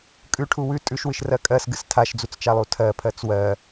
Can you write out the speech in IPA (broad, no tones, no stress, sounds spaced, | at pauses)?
kʼ ʉ ʈʰ u w ʉ tʼ ʉ ʃ w ɨ ʃ r ɜ kʼ ɜ s ɡ ɨ s tʰ a ʃ d͡z u t͡s t͡ʃ a lˠ u tʰ ɜ pʰ ɜ t͡s w ɜ